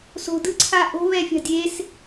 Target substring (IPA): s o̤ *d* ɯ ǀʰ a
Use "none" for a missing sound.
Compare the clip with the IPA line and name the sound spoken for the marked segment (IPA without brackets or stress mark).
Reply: d